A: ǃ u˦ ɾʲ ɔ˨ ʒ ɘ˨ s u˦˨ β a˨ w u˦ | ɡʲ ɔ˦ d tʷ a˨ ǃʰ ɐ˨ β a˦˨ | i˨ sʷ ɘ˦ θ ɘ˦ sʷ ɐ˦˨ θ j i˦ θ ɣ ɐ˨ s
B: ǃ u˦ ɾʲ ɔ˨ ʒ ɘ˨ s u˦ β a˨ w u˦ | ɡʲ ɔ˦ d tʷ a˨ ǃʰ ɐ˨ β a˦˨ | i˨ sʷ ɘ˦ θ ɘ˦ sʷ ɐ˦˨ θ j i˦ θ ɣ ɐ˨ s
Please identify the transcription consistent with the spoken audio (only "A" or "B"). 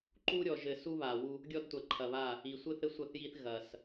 B